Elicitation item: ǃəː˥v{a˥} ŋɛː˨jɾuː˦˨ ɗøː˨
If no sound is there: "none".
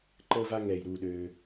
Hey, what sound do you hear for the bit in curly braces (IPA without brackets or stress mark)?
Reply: a˥